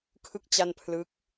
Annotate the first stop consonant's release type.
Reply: aspirated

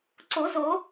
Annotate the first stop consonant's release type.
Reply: click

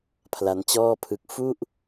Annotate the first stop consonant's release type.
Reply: aspirated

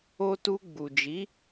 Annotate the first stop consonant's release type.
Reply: plain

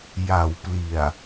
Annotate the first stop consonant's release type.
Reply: plain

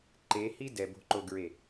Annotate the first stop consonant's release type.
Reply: click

